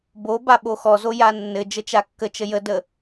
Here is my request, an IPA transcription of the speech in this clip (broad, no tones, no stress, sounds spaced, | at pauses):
b o b a ɓ o x ɔ z o j a nː ɘ d͡ʒ ə t͡ʃ a kː ə t͡ʃ ə j ə d ə